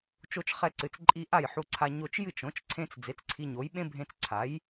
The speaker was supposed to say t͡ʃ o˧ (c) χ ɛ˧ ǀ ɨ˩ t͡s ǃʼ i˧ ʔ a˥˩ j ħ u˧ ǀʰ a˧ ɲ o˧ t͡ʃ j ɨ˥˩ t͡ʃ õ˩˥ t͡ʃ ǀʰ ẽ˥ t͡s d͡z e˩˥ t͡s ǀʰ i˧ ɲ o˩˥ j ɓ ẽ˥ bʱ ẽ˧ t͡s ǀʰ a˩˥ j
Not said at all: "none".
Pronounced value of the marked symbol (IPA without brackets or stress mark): t͡ʃ